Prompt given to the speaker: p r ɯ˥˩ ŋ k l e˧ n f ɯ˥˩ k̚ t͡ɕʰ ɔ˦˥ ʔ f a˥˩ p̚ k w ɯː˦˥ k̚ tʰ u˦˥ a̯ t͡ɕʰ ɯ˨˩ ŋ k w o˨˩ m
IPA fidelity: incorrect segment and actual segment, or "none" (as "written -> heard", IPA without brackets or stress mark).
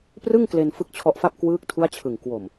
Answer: none